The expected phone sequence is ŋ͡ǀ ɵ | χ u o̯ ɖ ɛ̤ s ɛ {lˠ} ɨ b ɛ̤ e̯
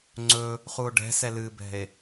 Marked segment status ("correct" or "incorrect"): incorrect